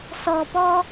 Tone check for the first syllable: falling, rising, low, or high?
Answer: low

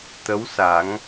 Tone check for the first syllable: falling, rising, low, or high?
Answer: rising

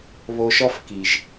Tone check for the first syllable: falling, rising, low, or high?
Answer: low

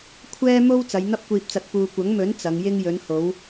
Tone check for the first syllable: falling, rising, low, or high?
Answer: high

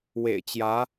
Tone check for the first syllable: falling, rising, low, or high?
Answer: low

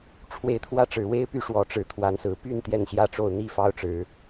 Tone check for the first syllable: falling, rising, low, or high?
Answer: rising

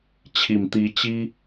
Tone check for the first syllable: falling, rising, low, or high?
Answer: low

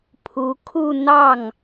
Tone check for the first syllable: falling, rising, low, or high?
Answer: rising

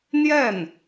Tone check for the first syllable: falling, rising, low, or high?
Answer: falling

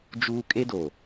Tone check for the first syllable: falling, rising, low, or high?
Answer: high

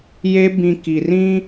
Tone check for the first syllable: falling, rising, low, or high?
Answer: high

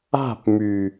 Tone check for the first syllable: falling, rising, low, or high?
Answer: falling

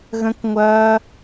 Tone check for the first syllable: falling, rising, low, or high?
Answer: high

